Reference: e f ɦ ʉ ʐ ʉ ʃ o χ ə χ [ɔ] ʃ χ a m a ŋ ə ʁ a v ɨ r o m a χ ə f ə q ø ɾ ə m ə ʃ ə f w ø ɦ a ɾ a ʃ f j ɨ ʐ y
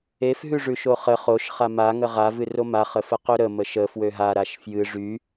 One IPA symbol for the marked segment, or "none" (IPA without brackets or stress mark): o